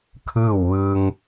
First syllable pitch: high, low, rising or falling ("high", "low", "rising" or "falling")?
falling